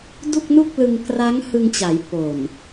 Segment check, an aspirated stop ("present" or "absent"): absent